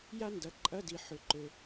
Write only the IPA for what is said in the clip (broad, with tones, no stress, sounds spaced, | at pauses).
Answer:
j a˥ n d ɐ˩˧ ǃʼ ɐ˧˥˧ d i˩ ħ ʏ˩˧ ǃ ø˩